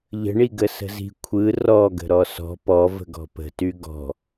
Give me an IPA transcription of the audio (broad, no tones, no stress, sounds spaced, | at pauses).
ʎ ə̤ ɳ i ɡ ə s ə̤ z i̤ kʷʰ ɯ r ɔ ɡ ə̤ ɾ ɔ s ɔ̤ p ɔ v ə̤ ɡ ɔ̤ p ə̤ t y ɡ ɔ̤